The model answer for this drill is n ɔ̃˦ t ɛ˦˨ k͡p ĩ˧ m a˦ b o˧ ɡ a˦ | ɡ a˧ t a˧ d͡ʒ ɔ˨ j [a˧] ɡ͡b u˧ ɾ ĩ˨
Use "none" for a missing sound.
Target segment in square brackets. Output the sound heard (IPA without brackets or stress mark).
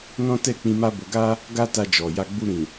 a˧